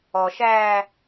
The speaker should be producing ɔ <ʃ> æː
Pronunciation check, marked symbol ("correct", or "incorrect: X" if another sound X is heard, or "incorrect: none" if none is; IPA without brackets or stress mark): correct